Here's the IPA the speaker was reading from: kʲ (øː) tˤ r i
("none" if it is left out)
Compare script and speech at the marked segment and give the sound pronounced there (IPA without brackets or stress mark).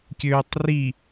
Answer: øː